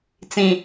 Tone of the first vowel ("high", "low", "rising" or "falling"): low